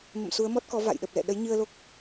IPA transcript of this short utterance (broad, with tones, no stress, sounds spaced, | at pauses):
m ə̰˧˨ m s u˨˦ ə̯ m ɔ˦˥ t̚ k ɔ˨˦ v a̰˧˨ j ɗ ə˨˩ p̚ l ɛ̰˧˨ ɗ ə˨˦ j ɲ ɨ˧ ə̯ l o˦˥ k̚